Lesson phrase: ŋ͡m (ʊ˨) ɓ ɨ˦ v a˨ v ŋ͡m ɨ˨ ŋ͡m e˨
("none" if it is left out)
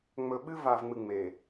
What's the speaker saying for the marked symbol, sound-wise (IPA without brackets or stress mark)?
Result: ɵ˨